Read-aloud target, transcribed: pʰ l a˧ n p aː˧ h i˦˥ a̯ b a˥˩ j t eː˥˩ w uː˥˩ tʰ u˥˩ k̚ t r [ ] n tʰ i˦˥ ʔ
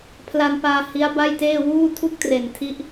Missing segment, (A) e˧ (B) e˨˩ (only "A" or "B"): B